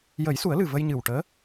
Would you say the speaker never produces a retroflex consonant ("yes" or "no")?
no